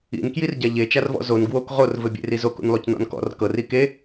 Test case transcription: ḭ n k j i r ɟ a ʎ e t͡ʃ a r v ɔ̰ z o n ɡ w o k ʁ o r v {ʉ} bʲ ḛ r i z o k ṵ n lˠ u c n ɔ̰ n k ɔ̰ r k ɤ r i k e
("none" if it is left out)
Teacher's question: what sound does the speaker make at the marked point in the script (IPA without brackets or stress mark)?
ɘ